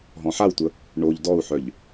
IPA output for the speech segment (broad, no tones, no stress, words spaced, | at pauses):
ɦɔ̃ħawtʷə | ɳoʎ dɔu̯ħœʎ